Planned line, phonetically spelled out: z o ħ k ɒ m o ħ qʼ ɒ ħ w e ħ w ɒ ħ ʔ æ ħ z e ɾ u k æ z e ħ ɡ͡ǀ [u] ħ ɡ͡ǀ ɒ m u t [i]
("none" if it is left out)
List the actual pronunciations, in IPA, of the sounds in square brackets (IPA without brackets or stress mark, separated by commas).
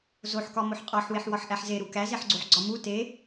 o, e